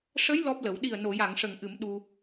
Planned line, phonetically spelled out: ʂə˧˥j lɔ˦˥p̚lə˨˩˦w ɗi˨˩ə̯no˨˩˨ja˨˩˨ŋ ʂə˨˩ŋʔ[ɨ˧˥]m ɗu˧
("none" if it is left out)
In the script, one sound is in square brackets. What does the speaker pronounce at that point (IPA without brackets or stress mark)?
ɨ˨˩˦